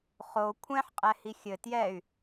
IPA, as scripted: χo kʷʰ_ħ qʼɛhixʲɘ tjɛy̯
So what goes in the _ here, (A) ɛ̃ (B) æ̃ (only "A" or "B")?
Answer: A